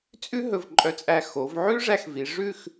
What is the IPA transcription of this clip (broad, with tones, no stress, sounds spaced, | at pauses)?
t͡sʼ ʉ˥ ɦ ɵ˧˩ v ǃʼ œ˧˩ t͡sʼ æ˧˩ x o˩˧ v ʕ ʉ˥ ʐ æ˧ x v i˩˧ ʐ ʉ˥˧ x